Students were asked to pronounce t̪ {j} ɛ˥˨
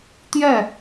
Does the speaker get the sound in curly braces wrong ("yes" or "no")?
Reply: no